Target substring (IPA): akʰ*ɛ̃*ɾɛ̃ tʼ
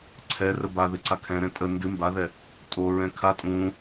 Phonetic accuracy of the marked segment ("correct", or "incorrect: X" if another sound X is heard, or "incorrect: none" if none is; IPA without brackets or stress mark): correct